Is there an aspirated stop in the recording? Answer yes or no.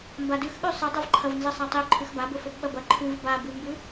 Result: yes